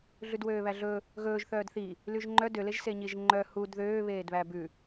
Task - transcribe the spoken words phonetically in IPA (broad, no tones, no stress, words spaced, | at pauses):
ɮʉdwøːβæɮɵ | ɣɵːʒ θœːdθi | lyʒŋ͡ǃœ døleʒ seɲiʒŋ͡ǃœ hud ðøːβeːdβæ bʉ